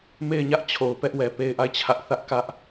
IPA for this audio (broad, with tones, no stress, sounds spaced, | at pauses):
m e˦˨ ɪ̯ ɲ ä˦ ʔ t͡ɕʰ o˨ ʊ̯ p ɛ˦ ʔ w ɛ˨ p e˦˨ ɪ̯ ʔ a˦˨ ɪ̯ t͡ɕʰ ä˦ ʔ θ ä˦ ʔ k ä˦ ʔ